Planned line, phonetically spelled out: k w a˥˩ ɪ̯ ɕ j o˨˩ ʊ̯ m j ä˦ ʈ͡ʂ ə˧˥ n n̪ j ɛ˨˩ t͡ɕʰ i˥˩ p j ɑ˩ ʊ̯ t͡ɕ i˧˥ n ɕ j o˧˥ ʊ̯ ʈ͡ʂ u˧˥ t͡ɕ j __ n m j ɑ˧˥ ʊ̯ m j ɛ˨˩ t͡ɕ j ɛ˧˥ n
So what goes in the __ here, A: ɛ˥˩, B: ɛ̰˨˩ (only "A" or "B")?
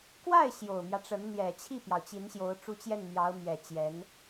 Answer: A